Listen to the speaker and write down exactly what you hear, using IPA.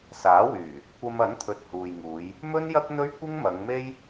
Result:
s aː˨˥ w yː˨˩ | kʷ ɐ˧ m ɐ˨˥ n t̪ʰ ɵ˨ t̚ h uː˨ j ŋ uː˨˧ j | m ɵ˥ n j ɐ˥ k̚ n̪ ɵ˥ ɥ kʷ ɪ˥ ŋ m ɐ˨˧ ŋ m e˥ j

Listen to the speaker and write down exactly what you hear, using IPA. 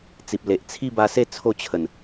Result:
t͡s i˨ p̚ l e˨ ʔ t͡sʰ i˥˧ b a˧ s e˥˧ t͡sʰ o˥˧ t͡ɕʰ ə˨˩ n

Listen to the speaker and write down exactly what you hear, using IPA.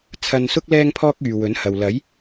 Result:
t͡sʰ ɐ˧ n s ʊ˥ k̚ l ɛː˥ ŋ pʰ ɔː˥ k̚ yː˨ w ɵ˨˥ n h ɐ˨ w l ɐ˨˥ j

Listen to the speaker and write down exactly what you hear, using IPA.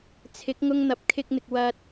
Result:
t͡sʰ ɪ˨˥ k̚ ŋ ʊ˧ ŋ n̪ ɐ˨˥ p̚ kʰ ɪ˧ k̚ n̪ ɪ˨ k̚ w ɐ˧ t̚

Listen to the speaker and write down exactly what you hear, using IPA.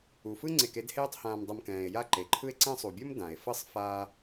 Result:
u˩ f ɯ˥ ŋ͡ǀ e˨ k e˦ d h eː˦ tˤ h ãː˨ m dˤ ɤ˨ m k ɛ̃ː˩ e̯ j a˦ ǃ e˩ ǃʰ ɯ˦ e̯ ǀ ɛ̃˦ sˤ u˩ bʲ o˥ m d ã˩ e̯ f ɤ˥ sˤ f aː˦

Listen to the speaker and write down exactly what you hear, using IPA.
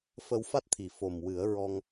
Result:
f ə˧ w f a˦˥ t̚ t̪ʰ i˨˩ f o˨˩ m w ɨ˨˩˦ ə̯ ɹ ɔ˧ ŋ

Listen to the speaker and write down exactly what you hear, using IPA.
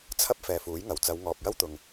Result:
t͡sʰ ɐ˥ p̚ f ɛː˨ f uː˨˥ j ŋ ɐ˨˩ w t͡s ɐ˨˧ w ŋ ɔː˨ p̚ j ɐ˥ w t̪ ʊ˨ ŋ

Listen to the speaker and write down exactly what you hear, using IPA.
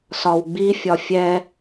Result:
s ɒ w ɡ͡b i fʲ ɒ fʲ ɛ

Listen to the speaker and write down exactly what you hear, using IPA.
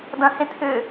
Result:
d ɐ̃ h ẽ t̪ʰ ʏ

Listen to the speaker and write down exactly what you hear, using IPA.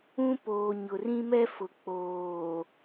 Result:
ũ˦ p oː˨ ɲ ʊ˨ r ĩ˦ m ɛ˦ f ʊ˨ k͡p oː˨

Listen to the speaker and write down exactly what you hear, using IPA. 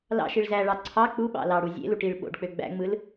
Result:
l ɑ̰ ʃ i ɭ z æ ɭ ɑ ǀʰ ɑ k͡p u ɓ ɑ̰ l ɑ ɽ u zʲ ḛ l u ʈ i ɭ ɓ o̰ ɖ k͡p ø ɡ͡b æ̰ ŋ͡m ɯ l

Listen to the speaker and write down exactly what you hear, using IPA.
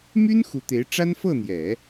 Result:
m y˥ n x u˧˥ t̪ e˧˥ ɪ̯ ʈ͡ʂ a˥ n f ɤ˥˩ n̪ j ɛ˨˩˦

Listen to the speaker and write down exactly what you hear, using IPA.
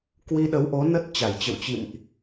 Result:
k w i˧ ɗ ə˨˦ w ʔ o˨˦ n ə˦˥ t̚ t͡ɕ a˧˩ j t͡ɕ ə̰˧˨ w t͡ɕ ḭ˧˨ m ʔ

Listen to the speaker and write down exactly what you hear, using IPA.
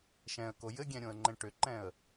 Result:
ʃ ɛ̃ ə̯ k o j ɘ ɡʲ ɛ̃ ɾʲ õ ə̯ ŋ͡ǃ ɛ̃ ʈ ʏ ǃ ɛ̃ ə̯

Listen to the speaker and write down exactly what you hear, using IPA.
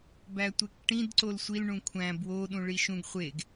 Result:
b æ tʷ e k ʈ ĩ d ǀ o l sʷ i l ɳ ũ kʷʰ æ̃ b w o ɗ ũ ɭ i ʃ ũ ɡ χʷ e ɡ

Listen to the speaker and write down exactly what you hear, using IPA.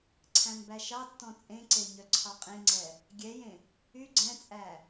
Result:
ǀʰ æ̃ m b æ ʃ ɑ tː ɔ̃ t͡sʼ ẽ ǀ e ɲ œ ǀʰ ɑ qʼ ẽ ŋ͡ǀ ɛ | ɡʲ ɛ j ẽ | y ɡ͡ǀ ɛ̃ t͡sʼ æ

